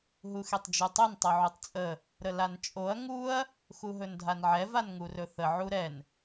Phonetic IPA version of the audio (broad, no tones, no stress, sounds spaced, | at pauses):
ɦ u x e tˤ d͡ʒ u tˤ ɵ n tˤ o ʕ u tˤ t͡sʼ ə | ɾ ə l a n t͡ʃʼ o ɐ̯ ŋ u ɐ̯ | x u ɦ ɵ n dʱ a n ʕ ɛ v a n ŋ u r ɵ θ ə ʕ u ɾ ɛ n